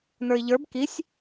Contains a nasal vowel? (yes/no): no